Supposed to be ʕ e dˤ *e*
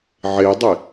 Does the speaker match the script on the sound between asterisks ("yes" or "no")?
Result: yes